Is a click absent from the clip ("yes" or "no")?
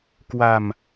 yes